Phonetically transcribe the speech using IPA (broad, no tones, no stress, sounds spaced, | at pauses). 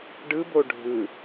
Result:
ɖ ɯ b o ɖʱ ɯ